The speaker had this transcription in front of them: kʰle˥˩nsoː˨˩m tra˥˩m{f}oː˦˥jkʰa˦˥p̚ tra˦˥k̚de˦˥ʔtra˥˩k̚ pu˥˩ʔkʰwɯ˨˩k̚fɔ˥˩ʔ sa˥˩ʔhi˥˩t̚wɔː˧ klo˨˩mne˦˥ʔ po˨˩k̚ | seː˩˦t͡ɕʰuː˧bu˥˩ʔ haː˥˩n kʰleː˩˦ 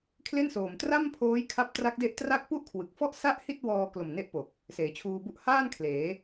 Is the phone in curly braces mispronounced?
yes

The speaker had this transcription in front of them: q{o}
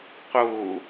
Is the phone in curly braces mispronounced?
no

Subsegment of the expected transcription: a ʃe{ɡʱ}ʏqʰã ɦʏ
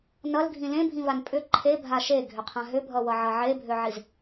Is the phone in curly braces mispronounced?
no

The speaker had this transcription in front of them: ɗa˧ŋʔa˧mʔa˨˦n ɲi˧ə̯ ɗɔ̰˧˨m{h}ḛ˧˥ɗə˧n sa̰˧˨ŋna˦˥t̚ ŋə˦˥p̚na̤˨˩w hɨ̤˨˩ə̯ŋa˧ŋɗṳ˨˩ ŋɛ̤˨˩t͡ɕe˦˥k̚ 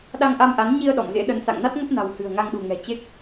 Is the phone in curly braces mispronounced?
yes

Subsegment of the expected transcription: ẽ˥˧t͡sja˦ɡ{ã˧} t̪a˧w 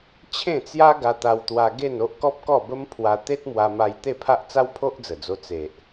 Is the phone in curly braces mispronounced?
yes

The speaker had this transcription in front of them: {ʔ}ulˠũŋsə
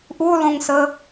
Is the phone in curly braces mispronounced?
no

